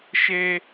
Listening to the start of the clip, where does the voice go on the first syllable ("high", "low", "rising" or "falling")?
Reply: high